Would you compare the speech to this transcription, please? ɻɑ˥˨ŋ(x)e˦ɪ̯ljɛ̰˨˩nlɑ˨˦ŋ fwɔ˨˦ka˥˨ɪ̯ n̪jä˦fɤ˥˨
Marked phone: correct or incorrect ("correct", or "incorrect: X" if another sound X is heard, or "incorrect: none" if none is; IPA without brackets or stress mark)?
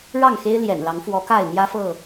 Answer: correct